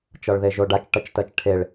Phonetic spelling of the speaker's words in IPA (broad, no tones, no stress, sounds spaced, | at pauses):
t͡ʃ ɒ ɭ ð e ʒ o ɖ a t͡ʃ ʈ ʌ t͡ʃ t ɜ t͡ʃ ʈʰ e ɭ